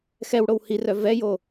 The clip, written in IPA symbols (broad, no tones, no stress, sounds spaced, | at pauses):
x ɛ w ɽ o w h i r œ v ɛ j o